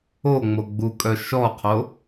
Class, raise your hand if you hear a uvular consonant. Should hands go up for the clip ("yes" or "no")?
yes